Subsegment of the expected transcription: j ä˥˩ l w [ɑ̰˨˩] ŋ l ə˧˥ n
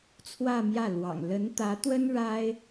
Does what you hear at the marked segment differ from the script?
no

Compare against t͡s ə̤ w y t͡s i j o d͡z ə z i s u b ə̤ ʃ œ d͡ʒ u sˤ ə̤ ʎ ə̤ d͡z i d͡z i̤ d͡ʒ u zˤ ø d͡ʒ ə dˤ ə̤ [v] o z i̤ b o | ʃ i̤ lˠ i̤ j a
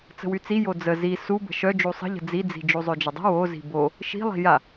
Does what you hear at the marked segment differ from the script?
yes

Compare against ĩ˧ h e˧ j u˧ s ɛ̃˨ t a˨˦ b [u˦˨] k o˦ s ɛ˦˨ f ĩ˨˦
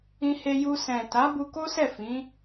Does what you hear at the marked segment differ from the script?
yes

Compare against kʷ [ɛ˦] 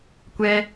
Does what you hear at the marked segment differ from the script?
no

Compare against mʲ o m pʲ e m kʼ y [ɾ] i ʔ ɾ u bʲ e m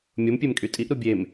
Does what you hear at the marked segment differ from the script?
yes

